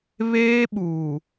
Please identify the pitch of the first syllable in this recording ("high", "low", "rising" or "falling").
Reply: high